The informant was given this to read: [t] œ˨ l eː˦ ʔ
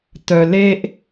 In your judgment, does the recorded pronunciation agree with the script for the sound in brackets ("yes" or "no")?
yes